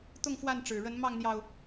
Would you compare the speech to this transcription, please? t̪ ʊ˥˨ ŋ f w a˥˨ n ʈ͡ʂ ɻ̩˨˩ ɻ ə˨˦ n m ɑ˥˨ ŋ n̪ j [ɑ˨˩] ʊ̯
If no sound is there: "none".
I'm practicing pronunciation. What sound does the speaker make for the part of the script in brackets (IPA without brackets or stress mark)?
ɑ˨˩